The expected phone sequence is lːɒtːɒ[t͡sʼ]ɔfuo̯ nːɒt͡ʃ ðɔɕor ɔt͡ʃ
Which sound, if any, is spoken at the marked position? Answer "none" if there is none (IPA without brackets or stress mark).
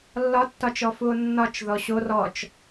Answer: t͡ʃ